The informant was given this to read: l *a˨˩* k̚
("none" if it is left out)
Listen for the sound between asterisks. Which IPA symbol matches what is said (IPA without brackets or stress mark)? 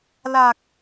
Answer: a˨˩